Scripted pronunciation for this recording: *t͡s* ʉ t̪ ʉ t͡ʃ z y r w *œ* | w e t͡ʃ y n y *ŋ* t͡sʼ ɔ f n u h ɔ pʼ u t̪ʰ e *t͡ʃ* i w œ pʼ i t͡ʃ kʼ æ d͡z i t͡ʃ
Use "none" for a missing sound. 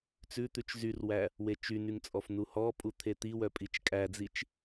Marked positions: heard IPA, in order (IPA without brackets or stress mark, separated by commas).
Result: t͡s, æ, ŋ, t̪